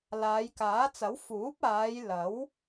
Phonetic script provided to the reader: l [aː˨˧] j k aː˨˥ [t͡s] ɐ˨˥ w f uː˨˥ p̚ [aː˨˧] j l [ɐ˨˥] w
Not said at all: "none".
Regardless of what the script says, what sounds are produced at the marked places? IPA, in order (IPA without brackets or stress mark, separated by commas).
aː˨˧, t͡s, aː˨˧, ɐ˨˥